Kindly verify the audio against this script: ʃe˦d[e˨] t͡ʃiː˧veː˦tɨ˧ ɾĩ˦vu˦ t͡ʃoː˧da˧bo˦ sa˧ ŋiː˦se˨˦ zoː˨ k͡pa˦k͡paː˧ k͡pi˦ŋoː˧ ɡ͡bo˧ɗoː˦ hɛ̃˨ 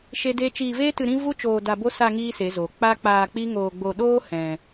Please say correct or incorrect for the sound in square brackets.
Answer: incorrect